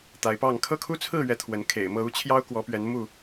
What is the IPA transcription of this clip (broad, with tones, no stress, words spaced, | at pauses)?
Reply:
t̪a˨˦ɪ̯pɑ˥˨ŋ kʰɤ˥˨kʰu˦t͡sʰɹ̩˥˨ɥɛ˨˦ t̪ʰwə˨˦nkʰḛ˨˩ɪ̯mɤ˥˨ u˦t͡ɕʰjɑ˦ʊ̯ kwɔ˨˦pɥɛ˨˦n mu˥˨